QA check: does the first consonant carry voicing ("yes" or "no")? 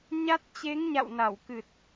yes